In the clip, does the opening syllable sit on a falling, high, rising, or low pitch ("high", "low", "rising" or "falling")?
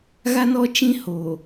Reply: high